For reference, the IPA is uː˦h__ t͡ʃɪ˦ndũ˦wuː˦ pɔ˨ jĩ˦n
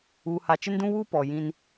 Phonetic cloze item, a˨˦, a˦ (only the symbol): a˦